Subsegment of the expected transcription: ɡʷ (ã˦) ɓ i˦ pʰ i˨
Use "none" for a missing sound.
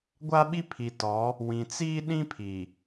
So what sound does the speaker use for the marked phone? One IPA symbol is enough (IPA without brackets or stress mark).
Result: a˦